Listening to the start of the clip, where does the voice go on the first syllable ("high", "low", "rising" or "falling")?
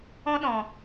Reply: high